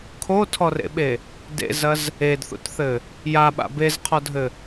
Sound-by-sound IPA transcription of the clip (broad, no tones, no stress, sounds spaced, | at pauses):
kʰ o tʰ ɔ r ḛ ɓ e | d ḛ z ɐ z | e d θ ṵ t θ ɘ | j a ɓ a̰ b e z qʰ ɔ dʱ ɘ